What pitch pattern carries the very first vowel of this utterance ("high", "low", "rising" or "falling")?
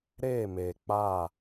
falling